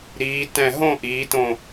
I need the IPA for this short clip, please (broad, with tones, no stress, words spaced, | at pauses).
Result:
ɾiː˩˧tɛ̃˧˩ ɦõ˥˧ʔiː˩˧tõ˧˩